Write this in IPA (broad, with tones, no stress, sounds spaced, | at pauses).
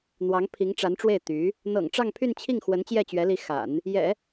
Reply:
n̪ w ɑ˧˥ ŋ pʰ i˧˥ ŋ ʈ͡ʂ a˧˥ n ʈ͡ʂ w e˥˩ ɪ̯ t̪ y˧˥ | n̪ ɤ̰˨˩ ŋ ʈ͡ʂ ɑ˥˧ ŋ pʰ y˥˧ n t͡ɕʰ i˥˩ ŋ x w ə˧˥ n t͡ɕ j ɛ˥˩ t͡ɕ ɥ ɛ˧˥ l i˧˥ x a̰˨˩˦ n | j ɛ̰˨˩˦